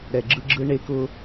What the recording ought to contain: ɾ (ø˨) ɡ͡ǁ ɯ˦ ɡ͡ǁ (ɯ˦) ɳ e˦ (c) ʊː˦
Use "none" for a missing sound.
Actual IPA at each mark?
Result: ɛ˨, ɯ˦, k

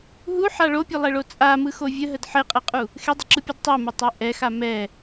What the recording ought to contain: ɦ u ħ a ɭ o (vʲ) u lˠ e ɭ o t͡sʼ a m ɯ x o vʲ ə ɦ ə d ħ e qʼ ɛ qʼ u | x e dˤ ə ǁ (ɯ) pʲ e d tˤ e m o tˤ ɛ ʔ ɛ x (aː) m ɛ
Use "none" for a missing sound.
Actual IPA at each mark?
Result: pʲ, ɯ, a

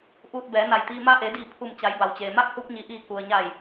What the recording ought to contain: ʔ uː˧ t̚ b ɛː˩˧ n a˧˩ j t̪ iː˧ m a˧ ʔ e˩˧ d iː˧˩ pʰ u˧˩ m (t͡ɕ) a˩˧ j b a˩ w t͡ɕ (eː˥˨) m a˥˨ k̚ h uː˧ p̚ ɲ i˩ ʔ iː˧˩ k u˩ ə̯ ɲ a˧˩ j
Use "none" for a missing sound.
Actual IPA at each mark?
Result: t͡ɕ, eː˩

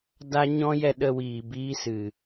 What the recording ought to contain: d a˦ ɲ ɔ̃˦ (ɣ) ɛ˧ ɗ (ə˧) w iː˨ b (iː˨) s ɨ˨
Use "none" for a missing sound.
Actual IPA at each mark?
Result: j, ə˧, iː˦

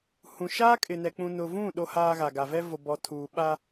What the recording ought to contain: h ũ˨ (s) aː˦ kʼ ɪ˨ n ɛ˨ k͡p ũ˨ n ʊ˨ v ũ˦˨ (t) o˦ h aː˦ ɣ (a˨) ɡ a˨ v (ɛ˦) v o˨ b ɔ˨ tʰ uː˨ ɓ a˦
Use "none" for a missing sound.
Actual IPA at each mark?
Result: ʃ, ɗ, a˨, ɛ˦

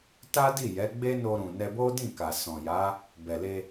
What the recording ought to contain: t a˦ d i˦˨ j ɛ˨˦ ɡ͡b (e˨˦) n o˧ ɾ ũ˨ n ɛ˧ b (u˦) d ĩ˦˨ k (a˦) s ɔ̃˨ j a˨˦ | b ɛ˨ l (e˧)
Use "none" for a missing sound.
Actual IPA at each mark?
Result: e˦, o˦, a˨, e˧

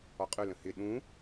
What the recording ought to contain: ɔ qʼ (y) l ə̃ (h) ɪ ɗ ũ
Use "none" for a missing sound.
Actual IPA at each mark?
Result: y, h

